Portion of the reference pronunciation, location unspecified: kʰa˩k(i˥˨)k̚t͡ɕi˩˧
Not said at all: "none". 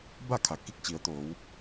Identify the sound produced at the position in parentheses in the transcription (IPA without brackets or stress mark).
i˥˨